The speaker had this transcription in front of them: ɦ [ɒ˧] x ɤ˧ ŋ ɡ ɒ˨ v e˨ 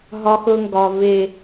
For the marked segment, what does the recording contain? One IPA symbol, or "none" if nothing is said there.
ɒ˧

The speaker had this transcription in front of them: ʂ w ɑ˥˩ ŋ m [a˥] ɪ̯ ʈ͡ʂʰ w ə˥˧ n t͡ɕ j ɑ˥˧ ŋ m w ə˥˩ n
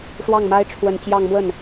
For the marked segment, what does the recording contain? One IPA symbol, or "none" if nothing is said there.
a˥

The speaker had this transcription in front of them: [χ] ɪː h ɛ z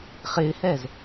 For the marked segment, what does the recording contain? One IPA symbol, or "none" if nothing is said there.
χ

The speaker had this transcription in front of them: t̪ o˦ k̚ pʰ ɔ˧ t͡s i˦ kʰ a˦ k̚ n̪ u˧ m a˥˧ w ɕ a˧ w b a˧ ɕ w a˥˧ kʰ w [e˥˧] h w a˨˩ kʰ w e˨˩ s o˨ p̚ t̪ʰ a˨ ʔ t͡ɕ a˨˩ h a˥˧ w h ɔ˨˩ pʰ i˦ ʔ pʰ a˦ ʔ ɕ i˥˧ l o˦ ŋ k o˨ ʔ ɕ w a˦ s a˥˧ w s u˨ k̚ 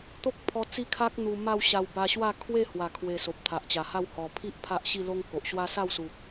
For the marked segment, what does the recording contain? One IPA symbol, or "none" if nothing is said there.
e˥˧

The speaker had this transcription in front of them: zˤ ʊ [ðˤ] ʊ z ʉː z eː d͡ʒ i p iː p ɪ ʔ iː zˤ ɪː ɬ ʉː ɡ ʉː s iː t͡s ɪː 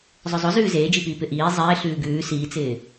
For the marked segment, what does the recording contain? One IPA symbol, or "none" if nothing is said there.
zˤ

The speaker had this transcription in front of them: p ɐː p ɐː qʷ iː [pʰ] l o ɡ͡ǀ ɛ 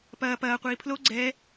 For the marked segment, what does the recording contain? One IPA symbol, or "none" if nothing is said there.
pʰ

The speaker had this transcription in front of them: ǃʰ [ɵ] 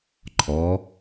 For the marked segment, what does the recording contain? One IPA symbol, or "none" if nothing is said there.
ɔ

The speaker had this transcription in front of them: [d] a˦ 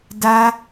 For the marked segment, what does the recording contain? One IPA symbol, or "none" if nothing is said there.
d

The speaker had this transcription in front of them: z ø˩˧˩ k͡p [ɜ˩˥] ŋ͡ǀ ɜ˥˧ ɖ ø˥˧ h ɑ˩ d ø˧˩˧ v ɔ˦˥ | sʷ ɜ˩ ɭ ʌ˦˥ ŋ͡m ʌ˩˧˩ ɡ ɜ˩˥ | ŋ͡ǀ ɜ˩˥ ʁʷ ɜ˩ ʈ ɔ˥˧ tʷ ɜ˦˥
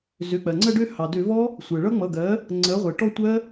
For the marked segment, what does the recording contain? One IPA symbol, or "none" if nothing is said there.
ɜ˩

